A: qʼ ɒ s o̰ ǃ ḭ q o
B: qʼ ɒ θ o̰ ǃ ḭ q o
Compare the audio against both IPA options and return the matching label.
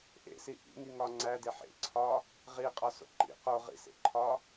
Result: A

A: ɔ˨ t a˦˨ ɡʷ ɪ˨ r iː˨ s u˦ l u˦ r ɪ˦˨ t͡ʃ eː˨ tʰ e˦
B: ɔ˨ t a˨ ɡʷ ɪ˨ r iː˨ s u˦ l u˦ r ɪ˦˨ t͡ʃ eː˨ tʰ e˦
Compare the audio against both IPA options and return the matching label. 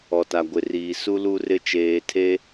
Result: B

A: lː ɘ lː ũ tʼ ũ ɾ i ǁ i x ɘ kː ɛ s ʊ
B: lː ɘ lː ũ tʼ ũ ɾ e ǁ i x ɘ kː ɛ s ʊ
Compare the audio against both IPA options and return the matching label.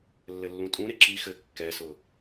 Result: B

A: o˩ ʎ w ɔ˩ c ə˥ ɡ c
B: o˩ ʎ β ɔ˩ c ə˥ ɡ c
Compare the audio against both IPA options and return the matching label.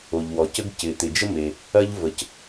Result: A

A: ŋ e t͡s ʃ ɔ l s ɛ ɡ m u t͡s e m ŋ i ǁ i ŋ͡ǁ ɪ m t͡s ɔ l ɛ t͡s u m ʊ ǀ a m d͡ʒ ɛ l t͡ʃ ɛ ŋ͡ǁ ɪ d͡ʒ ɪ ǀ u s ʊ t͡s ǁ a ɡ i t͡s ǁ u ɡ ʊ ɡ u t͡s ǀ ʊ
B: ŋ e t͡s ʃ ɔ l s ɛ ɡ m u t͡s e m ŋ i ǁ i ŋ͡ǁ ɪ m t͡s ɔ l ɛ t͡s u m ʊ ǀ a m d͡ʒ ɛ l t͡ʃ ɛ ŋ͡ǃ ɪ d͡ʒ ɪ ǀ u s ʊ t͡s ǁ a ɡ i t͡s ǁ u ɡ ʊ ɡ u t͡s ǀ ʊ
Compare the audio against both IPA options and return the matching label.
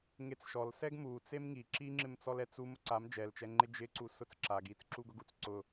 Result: B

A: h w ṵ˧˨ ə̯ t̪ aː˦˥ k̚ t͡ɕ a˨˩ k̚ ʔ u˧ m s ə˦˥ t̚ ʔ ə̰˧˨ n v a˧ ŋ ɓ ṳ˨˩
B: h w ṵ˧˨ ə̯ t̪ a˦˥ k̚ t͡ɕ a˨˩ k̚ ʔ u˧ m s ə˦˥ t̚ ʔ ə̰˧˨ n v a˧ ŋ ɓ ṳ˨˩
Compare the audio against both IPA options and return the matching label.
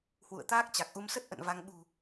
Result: A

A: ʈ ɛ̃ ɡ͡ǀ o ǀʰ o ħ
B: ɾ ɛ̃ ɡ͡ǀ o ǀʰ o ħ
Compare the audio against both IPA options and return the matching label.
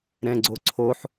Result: B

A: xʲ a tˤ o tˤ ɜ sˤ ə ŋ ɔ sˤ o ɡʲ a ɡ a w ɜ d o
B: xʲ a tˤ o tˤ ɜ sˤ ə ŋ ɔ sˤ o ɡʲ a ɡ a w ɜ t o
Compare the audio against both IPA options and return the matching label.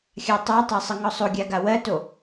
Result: B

